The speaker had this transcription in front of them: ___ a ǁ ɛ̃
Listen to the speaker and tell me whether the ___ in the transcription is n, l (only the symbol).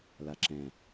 l